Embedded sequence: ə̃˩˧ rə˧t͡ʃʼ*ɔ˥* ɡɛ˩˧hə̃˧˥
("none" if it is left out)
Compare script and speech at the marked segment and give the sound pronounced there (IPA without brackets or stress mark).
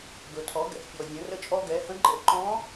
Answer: ɔ˧